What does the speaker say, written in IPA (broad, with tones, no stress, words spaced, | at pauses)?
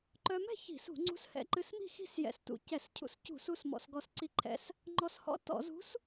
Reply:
ǃœ˧mɛ̤˥˨ çi̤˧˩˧sṳ˧˩˧ŋ͡ǀṳ˧˥s hɛ̰˧ǃɨ˧s mi̤˥˨xi̤˥˨sjɛ̰˧˩˧s tṵ˧ cɛ˧˩˧scʰṵ˧˥s cṳ˧˩˧su˧s mɔ̰˧s ɡɔ˧sǀi˧˥ǃʰɛ̰˧s | ŋ͡ǃɔ˧shɔ̰˧˥tɔ̰˧˩˧zṳ˧˥s